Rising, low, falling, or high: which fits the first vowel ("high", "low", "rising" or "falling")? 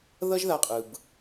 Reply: high